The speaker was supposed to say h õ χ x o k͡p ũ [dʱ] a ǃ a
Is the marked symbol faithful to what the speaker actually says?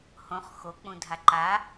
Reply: yes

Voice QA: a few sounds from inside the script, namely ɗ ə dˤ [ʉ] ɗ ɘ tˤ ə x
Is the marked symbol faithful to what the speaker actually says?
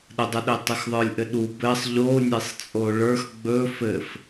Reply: no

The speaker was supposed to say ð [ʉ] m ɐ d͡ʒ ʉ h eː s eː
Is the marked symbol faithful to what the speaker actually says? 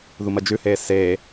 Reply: no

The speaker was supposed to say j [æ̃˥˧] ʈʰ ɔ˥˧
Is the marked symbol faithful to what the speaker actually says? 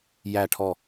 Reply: no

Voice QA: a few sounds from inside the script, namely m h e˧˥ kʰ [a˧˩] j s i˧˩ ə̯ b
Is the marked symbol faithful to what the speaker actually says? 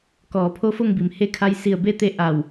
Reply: no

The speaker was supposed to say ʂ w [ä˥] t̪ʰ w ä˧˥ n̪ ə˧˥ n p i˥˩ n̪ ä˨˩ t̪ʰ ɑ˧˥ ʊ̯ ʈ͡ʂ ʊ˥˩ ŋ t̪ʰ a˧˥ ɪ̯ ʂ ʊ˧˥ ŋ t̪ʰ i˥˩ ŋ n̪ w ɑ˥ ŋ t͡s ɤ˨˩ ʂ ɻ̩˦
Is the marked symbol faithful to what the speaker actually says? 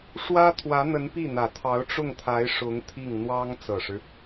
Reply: yes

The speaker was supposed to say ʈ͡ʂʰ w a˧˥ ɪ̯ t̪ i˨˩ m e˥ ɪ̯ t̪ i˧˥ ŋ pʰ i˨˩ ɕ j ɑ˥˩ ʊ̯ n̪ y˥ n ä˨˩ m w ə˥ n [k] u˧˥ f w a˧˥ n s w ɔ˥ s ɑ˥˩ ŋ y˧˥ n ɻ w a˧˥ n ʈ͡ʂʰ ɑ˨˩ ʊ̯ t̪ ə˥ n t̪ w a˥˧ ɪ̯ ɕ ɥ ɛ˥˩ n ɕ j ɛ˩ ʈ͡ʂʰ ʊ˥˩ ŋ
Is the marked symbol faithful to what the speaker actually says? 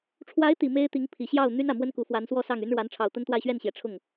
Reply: yes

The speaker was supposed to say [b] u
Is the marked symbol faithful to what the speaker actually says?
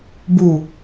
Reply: yes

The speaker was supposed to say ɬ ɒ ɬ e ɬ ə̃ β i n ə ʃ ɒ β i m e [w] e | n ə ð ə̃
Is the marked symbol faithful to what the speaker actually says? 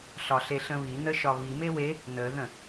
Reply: yes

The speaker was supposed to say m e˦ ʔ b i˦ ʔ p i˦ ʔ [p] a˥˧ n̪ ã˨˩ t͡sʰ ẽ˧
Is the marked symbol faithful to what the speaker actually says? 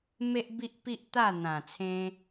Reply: no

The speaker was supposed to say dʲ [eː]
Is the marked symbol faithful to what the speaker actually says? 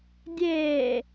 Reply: yes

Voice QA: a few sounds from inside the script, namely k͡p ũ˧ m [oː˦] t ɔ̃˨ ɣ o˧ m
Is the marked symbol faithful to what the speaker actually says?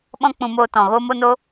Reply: no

